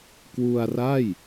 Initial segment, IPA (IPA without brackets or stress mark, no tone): k